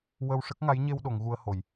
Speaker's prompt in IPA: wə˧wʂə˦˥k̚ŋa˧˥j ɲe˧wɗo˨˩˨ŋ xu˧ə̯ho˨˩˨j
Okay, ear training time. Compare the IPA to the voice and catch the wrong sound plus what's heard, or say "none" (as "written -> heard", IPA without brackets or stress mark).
x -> ɣ